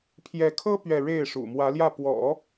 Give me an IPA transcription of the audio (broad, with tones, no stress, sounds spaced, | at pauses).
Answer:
pʰ j ɛ˧˥ kʰ ɤ˥ p ɥ ɛ˥˧ ɻ e˥˩ ɪ̯ ʂ ṵ˨˩ m w ä˧˥ l j ä˥˩ p w ɔ̰˨˩˦